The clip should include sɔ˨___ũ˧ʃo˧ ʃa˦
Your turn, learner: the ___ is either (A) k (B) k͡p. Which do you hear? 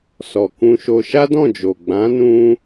A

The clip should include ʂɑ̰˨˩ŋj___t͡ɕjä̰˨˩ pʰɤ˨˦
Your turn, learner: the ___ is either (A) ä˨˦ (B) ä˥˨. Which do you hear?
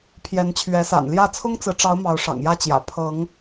B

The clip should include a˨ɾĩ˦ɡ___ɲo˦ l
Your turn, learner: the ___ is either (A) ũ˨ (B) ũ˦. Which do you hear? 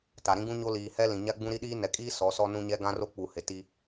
B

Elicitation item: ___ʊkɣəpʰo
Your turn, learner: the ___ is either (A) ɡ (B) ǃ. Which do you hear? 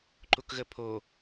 B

